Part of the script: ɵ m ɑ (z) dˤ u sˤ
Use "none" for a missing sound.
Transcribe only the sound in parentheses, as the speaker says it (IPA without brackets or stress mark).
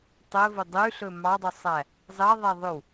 none